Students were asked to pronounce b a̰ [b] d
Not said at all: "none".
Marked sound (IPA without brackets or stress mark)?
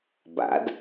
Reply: none